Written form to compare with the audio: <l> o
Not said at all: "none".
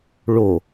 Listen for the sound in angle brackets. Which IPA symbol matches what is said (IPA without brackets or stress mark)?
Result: ɭ